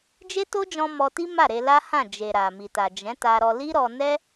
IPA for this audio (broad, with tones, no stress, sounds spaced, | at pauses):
d͡ʒ e˦ t o˦ d͡ʒ ɔ̃˧ m ɔ˧ t i˦ m a˦˨ ɾ e˧ l a˦ h ã˦˨ d͡ʒ e˨ ɾ a˨ m i˨ t a˨ d͡ʒ ɛ̃˨˦ t a˧ ɾ ɔ˧ l i˦ ɾ ɔ˧ n ɛ˦